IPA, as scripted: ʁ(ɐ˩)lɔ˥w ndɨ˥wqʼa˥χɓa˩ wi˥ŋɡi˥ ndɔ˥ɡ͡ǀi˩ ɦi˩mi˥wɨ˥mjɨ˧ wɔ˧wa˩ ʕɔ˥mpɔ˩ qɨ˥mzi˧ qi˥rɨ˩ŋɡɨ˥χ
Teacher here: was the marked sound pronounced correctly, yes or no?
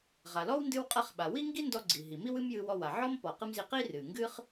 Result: no